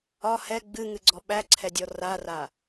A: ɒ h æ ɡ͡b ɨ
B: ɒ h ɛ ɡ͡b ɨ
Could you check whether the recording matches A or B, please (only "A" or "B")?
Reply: B